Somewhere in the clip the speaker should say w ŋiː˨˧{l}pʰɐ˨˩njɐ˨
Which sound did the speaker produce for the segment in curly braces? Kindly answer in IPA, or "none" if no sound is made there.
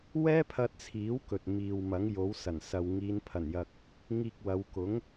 n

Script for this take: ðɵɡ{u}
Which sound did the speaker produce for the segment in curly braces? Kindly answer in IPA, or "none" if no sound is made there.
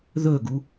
u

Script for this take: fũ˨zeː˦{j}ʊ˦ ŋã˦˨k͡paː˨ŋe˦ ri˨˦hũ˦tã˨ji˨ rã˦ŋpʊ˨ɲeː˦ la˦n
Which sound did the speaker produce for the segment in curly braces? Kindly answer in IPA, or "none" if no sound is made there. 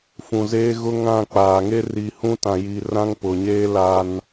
ɣ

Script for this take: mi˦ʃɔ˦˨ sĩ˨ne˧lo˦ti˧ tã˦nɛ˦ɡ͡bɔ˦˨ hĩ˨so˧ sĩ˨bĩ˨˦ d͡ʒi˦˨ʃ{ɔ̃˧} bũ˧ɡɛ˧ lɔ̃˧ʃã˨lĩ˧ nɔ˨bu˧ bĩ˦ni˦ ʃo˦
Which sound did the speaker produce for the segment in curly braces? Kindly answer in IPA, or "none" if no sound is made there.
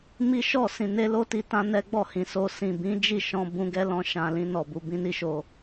ɔ̃˧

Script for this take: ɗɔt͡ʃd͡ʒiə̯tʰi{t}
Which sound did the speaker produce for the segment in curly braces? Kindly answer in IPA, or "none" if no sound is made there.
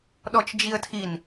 n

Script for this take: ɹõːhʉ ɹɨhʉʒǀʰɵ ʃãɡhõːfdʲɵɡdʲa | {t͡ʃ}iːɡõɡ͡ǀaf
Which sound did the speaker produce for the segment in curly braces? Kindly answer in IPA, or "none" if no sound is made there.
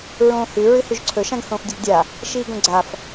ʃ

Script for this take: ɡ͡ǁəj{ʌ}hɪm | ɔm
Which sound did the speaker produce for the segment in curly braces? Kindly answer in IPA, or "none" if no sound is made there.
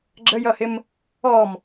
ʌ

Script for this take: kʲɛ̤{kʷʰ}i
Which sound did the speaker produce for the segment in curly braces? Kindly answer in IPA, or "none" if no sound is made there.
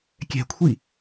kʷʰ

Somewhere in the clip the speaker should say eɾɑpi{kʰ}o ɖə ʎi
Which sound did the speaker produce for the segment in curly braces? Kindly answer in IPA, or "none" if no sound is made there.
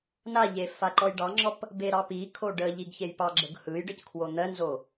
kʰ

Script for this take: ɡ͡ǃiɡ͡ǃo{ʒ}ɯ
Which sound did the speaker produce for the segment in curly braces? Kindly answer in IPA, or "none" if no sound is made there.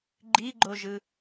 ʒ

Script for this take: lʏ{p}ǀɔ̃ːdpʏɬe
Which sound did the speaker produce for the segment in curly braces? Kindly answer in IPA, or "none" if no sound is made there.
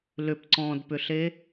p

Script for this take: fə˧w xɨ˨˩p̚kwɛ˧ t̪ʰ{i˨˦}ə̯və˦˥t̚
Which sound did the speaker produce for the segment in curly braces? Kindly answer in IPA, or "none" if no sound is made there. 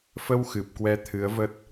ɨ˨˦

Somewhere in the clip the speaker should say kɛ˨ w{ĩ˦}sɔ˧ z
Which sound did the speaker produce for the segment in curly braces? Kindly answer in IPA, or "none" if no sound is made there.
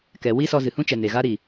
i˦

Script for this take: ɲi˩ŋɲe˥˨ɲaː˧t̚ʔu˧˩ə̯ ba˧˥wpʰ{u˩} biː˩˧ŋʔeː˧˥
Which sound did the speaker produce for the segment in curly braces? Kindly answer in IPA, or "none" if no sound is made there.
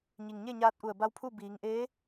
u˥˨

